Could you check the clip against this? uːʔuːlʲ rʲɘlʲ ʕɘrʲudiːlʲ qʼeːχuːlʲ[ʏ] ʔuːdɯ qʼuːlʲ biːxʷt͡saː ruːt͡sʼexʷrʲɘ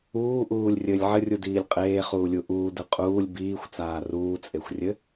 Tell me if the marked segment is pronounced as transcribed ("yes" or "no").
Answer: no